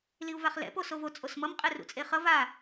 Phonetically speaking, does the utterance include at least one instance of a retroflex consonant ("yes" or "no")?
no